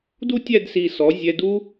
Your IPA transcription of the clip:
du˥tʲæ˥˧dsi˧˩sɔ˩˧ zʲɛ˧du˥

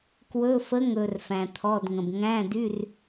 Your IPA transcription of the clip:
kwɵ˧˥˧fə˧˥˧ŋ ɵ˨r fæ̃˨t̪ʰɔ˧˥˧dŋə̃˨b ŋæ̃˧˥˧dy˧˥˧r

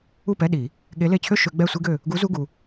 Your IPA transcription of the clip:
u˥˨pɛ˧˥˧ɗi˨˩˦ | ɠe˧˥le˧˥˧t͡ɕʰø˥ ʃø˧˥ɡ͡bɛ˥˨sʷi˥ɡø˥˨ | ɡu˧˥zu˧˥˧ɡu˨

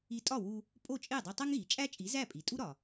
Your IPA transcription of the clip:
i˧tʼɒ˥˩wu˧ | pʼo˥˩t͡ʃʼe˥˩dˤe˧ tˤæ˥ŋɣi˩t͡ʃʼæ˥t͡ʃʼi˩˥ zæ˥˩pʼi˩ tʼu˥ɾɒ˩

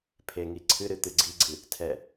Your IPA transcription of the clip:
pʰeŋi ǀʰɨɾɨ t̪ɨɡ͡ǀiɡ͡ǀɨ | tʰɛ

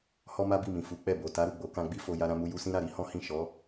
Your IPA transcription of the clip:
hɔ˦ma˦bi˦˨mĩ˨ fu˨˦k͡pɛ˦˨ bo˨ta˨˦ ɾu˦˨ɡ͡bo˨˦kã˧ɡ͡bi˦ fo˧ ja˧ɾã˧mu˧ ju˧sĩ˦ɾa˦˨ ɾi˨˦hɔ̃˦ hĩ˦˨ ʃɔ˨˦

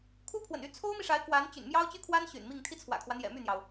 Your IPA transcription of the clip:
kʰu˥pʰwə̰˨˩ny˧˥ t͡sʰo˥ʊ̯mi˨ʂa˧˥ɪ̯ kwa˧˥n t͡ɕy̰˨˩nmjɑ˥ʊ̯t͡ɕy˥kʰwa˥n ɕy̰˨˩nmi˥˩ŋ t̪ʰi˥t͡sʰwä̰˨˩kʰwä˦n̪jɛ̰˨˩ my˥˩n̪jɑ˩ʊ̯

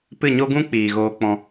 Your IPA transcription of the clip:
pɨ˦˨ɲo˦ɡũ˦ k͡piː˨ɣoː˧k͡pɔ̃˧

